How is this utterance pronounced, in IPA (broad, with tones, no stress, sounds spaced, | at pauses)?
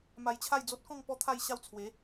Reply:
m a˧ j t͡ɕʰ a˥˧ j d͡z o˦ t̚ k ɔ̃˥˧ ŋ p ɔ˥˧ t̪ʰ a˥˧ j ɕ a˥˧ w t͡sʰ w e˨˦